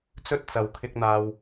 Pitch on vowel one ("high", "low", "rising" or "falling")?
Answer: high